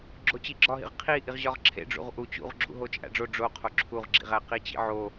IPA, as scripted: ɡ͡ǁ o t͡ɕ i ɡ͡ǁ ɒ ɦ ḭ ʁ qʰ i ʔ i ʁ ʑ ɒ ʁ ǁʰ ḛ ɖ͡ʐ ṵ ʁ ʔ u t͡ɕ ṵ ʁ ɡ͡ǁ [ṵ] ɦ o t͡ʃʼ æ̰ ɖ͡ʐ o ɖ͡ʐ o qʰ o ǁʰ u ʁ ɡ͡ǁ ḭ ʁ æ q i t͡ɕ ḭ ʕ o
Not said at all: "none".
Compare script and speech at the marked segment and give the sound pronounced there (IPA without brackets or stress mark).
ṵ